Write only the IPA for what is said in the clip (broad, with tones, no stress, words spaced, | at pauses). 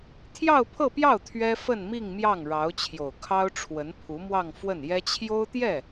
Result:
t̪ʰjɑ˥˧ʊ̯pʰɤ˥˧pjɑ˥˩ʊ̯ t̪ʰɥɛ˥ fə˥˧nmi˥˧ŋ mjɑ˥˩ŋɻɑ˧˥ʊ̯t͡ɕʰjo˨˩ʊ̯ kʰɑ˥ʊ̯ʈ͡ʂʰwə˧˥n pʰu˧˥mwɑ˥˧ŋ fwə˥˩njɛ˥ t͡ɕʰjo˥ʊ̯t̪jɛ˥˩